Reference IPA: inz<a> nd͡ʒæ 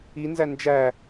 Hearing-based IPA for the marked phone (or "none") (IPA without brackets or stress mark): æ